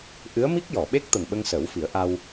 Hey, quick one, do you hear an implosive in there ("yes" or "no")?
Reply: yes